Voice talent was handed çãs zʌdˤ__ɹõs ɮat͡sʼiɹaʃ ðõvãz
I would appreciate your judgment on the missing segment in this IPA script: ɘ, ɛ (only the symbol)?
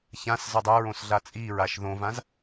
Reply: ɛ